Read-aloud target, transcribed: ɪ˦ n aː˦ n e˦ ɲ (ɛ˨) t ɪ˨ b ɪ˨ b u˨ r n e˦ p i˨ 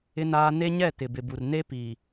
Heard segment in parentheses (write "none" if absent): ɛ˦˨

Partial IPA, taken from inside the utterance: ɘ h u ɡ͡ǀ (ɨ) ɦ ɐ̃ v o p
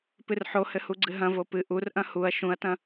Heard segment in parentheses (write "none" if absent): ɨ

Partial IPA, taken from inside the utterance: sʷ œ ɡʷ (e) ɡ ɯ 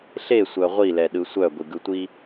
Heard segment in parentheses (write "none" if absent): i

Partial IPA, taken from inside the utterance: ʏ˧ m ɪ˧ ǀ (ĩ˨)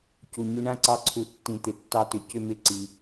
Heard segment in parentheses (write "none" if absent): i˨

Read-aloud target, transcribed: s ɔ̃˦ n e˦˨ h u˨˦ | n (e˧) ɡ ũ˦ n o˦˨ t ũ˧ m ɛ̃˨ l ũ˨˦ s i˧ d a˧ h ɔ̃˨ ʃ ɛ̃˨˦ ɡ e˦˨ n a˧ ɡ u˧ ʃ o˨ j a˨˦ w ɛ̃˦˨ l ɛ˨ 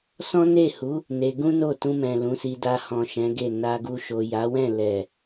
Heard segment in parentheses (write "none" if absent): e˧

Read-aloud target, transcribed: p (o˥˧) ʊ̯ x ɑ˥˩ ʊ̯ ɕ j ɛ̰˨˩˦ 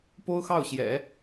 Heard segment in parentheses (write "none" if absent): o˥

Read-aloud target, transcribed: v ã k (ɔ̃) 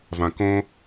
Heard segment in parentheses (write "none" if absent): õ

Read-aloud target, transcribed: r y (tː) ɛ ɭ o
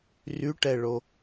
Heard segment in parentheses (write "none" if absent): ʈ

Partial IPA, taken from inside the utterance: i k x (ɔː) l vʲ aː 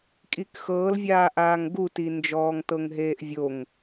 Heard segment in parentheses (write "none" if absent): ɤː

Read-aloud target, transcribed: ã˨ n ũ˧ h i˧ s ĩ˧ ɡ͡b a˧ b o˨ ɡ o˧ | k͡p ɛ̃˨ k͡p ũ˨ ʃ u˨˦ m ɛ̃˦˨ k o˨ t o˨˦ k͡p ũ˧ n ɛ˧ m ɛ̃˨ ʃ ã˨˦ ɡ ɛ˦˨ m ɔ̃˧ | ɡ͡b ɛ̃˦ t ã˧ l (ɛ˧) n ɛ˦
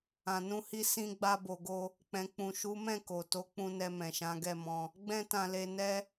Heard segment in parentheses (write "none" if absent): e˧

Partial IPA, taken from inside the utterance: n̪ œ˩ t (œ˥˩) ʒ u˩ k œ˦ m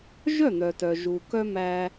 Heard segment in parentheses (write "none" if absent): œ˩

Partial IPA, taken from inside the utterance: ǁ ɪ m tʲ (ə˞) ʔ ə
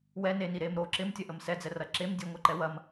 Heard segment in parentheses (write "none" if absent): ɐ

